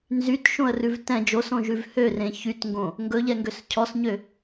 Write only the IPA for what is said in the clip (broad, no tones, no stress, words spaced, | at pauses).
nzytʃõə̯rʉv tɛ̃ d͡ʒosõʒʉv hørẽ çytŋɡõ | ŋɡɵʎɛŋɡøs cʰɔsɲø